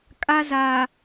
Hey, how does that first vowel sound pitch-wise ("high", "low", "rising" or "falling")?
high